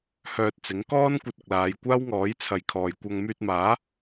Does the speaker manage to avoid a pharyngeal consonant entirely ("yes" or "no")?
yes